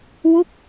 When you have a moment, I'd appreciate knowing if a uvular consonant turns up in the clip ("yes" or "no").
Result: no